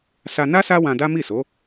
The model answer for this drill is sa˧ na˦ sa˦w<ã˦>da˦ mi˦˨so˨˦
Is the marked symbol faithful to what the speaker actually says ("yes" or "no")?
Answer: no